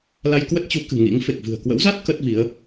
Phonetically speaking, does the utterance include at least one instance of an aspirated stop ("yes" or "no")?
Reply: no